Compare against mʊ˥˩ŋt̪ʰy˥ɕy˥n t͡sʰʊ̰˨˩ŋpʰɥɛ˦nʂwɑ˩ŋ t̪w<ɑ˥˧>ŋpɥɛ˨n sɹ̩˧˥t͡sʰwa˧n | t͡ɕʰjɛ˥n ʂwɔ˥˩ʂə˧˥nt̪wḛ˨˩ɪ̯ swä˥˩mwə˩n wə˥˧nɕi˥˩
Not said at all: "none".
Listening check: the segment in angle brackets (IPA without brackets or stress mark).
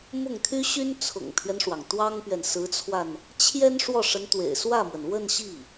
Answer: ɑ˥